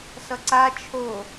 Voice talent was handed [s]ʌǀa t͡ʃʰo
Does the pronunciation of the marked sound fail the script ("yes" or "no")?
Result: no